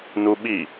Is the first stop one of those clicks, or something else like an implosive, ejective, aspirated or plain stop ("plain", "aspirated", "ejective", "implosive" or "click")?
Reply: implosive